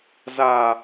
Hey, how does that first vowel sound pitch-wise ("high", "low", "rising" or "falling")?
low